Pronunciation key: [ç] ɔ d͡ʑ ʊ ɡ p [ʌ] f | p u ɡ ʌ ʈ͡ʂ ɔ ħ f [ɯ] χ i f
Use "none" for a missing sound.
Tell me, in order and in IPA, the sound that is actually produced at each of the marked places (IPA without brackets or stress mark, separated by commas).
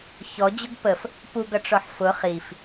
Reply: ç, ə, ʊ